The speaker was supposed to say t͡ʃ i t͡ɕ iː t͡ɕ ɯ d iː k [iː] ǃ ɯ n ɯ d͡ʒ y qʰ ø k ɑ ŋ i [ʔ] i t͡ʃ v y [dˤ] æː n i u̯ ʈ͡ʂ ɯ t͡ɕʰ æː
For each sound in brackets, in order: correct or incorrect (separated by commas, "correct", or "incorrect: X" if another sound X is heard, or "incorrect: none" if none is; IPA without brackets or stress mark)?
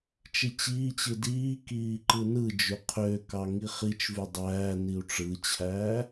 correct, incorrect: χ, correct